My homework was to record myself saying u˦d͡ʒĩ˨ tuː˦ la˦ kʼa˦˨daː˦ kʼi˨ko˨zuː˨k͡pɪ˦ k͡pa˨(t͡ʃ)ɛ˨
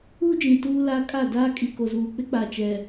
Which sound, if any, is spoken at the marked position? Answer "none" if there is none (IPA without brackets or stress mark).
t͡ʃ